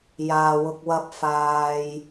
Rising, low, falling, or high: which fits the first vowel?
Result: low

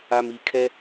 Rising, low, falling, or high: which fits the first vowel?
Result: low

